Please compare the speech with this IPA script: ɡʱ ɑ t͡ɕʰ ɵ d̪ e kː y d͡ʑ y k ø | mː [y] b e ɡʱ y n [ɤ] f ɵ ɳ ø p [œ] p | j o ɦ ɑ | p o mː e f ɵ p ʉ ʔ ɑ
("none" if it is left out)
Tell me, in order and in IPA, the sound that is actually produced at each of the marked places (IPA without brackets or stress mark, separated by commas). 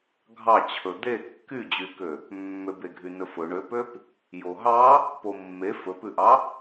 ø, ɵ, ø